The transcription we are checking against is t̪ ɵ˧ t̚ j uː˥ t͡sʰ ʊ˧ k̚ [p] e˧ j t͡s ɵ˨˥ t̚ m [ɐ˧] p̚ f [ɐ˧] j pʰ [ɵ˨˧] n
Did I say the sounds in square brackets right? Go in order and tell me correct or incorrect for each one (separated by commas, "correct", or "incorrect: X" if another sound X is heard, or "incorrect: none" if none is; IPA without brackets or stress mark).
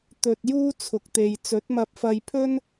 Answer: incorrect: t̪, correct, correct, incorrect: ɵ˥